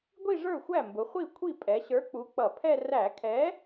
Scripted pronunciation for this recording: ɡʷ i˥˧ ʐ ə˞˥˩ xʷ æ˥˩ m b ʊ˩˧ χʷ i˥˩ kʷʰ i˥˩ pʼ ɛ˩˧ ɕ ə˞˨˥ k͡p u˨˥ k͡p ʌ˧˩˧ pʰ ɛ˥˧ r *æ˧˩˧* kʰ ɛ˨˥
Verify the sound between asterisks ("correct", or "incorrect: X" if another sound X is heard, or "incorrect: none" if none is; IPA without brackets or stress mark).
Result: correct